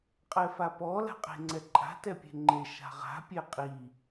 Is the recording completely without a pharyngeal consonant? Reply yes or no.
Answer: yes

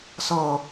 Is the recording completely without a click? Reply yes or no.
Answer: yes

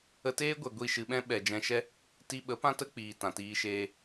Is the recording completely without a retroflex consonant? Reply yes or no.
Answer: yes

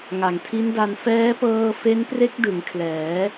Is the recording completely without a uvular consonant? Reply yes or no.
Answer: yes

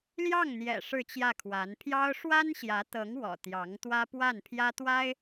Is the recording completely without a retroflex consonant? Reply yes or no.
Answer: no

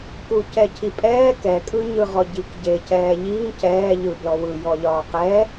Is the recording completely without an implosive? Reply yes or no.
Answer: yes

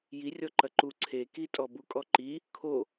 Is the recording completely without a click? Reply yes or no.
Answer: no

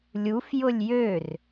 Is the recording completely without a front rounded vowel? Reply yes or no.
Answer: no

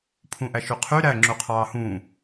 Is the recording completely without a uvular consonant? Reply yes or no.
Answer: no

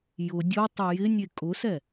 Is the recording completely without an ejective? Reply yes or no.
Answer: no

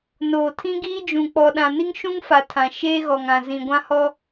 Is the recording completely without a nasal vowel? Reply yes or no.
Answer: no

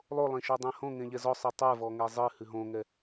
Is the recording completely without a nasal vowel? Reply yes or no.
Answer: no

